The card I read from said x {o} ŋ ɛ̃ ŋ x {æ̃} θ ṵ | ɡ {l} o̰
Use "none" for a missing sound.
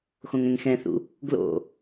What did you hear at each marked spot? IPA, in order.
õ, ɛ̃, l

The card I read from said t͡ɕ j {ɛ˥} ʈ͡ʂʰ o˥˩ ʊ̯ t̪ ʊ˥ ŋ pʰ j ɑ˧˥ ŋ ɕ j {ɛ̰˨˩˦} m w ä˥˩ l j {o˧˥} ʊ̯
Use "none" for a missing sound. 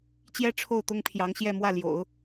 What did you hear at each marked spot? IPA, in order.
ɛ˥, ɛ˥˧, o̰˨˩˦

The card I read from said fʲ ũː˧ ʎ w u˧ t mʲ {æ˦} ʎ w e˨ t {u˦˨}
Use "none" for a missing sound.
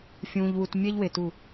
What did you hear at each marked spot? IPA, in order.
ɛ˦, u˦˨

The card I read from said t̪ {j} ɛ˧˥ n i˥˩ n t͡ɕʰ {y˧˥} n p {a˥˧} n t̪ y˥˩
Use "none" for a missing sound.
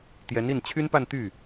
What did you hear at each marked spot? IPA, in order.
j, y˥, a˥˧

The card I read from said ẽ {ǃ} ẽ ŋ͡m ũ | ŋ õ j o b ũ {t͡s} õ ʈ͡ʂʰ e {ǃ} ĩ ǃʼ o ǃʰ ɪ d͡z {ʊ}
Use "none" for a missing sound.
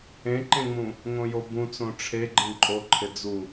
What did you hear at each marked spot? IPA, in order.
ǃ, t͡s, ɡ͡ǃ, u

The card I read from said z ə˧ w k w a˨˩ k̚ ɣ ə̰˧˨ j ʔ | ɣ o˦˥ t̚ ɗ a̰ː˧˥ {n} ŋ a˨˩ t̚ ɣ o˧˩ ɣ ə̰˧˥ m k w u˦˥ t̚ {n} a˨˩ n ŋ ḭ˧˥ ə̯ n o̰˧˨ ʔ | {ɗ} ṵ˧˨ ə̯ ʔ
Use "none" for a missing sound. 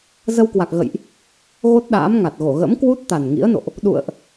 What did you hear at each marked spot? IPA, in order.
m, t̪, ɗ

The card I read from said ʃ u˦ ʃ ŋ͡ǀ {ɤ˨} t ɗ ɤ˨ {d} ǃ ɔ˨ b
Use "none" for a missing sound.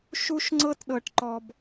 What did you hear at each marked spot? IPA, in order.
ɤ˦, ʈ

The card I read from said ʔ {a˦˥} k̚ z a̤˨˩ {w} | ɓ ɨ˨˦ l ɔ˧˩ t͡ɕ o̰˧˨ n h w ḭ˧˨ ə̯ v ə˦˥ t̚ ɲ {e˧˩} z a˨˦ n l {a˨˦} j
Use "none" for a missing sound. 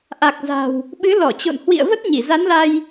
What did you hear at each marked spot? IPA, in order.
a˨˩, w, i˧˩, a˧

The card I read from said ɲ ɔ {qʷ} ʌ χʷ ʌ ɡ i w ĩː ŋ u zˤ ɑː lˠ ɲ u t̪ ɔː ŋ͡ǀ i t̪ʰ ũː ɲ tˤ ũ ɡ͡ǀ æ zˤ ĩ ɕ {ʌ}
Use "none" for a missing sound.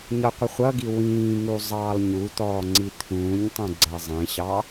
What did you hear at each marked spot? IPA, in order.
qʷ, ɑ

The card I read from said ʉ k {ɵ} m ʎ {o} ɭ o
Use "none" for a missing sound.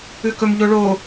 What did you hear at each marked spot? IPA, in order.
ɵ, o

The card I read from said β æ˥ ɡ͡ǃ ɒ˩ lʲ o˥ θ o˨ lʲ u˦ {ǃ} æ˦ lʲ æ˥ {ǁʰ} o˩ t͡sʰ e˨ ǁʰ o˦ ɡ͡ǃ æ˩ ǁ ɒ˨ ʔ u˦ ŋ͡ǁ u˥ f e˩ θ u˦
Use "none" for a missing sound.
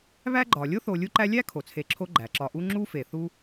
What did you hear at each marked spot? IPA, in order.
ǃ, kʰ

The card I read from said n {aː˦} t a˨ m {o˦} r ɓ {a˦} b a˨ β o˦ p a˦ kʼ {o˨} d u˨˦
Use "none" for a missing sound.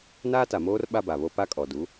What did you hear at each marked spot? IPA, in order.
aː˦, oː˦, a˦, ɔ˨

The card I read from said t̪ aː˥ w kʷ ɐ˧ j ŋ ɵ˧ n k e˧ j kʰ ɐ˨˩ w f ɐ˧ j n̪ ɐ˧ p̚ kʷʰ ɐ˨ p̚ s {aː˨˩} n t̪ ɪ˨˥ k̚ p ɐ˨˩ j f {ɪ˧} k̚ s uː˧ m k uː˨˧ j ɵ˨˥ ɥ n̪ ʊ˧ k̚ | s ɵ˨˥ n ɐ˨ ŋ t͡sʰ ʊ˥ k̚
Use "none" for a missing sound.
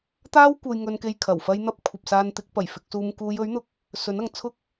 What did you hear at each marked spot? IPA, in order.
aː˧, ɪ˧

